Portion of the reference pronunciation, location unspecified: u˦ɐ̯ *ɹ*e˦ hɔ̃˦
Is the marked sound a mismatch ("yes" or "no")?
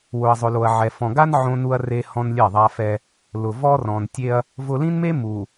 yes